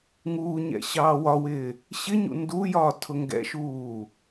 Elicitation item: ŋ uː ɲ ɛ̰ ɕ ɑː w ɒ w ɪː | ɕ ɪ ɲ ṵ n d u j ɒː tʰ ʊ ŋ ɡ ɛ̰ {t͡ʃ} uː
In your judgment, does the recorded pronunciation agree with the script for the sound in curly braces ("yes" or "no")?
no